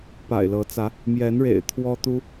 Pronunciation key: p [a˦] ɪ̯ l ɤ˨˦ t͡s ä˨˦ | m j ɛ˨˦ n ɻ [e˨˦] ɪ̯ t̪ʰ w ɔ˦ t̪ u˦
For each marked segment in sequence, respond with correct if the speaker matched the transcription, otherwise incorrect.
incorrect, incorrect

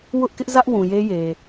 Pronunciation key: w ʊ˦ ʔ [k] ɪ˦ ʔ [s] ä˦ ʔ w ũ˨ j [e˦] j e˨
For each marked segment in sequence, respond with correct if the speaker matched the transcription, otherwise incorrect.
correct, incorrect, correct

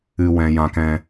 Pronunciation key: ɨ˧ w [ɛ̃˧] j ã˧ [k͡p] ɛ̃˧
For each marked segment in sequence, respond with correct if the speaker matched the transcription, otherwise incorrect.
correct, incorrect

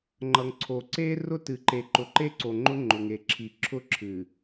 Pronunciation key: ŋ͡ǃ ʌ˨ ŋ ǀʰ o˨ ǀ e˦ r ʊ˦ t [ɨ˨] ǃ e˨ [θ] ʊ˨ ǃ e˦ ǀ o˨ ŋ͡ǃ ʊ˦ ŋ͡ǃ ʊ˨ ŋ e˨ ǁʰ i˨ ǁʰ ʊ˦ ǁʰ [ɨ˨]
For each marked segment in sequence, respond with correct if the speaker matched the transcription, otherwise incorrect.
correct, incorrect, correct

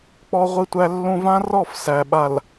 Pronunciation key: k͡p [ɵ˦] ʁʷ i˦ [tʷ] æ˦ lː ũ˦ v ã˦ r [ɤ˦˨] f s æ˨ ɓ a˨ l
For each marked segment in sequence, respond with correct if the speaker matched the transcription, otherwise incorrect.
incorrect, correct, incorrect

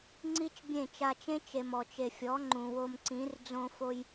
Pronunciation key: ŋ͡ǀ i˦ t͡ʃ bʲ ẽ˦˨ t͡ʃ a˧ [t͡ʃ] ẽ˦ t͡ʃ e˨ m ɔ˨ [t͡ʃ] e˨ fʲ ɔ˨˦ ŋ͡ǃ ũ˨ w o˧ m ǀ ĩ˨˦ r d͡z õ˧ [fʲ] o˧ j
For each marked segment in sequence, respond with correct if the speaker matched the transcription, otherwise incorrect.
correct, correct, incorrect

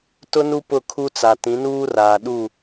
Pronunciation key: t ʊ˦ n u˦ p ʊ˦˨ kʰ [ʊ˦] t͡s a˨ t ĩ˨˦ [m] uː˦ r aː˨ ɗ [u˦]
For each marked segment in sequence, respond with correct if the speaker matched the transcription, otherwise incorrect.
incorrect, incorrect, incorrect

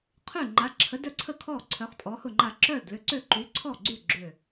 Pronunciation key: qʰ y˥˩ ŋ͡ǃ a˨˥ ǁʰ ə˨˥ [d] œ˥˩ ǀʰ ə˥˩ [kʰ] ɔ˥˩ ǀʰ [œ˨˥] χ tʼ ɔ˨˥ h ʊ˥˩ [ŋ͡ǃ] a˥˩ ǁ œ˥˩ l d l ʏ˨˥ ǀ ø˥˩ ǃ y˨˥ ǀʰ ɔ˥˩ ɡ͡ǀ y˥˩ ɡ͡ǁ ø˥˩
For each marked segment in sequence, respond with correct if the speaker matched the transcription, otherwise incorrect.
correct, correct, correct, correct

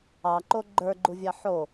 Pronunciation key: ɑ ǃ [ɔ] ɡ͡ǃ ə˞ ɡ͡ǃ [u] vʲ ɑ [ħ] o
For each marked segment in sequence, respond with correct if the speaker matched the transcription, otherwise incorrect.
incorrect, correct, correct

